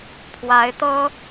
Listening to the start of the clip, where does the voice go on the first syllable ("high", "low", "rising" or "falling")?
rising